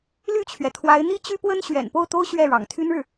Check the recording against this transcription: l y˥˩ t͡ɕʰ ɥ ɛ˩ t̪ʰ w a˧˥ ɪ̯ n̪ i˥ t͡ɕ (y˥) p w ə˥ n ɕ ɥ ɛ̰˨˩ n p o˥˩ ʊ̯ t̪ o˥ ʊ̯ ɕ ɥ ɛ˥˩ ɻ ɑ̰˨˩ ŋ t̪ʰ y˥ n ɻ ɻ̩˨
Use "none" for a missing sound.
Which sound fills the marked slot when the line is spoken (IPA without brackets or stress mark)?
y˥